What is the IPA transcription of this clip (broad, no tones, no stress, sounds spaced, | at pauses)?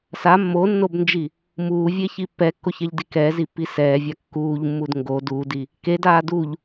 s a mː o nː o b n d͡ʒ i | m uː vʲ e ç i pː ɛ kː o ç ɛ ʎ d i k ɛː z i pː i s ɛː vʲ a kː uː ʎ mː u d ŋ ɡ o d uː d i | k e d aː d u ʎ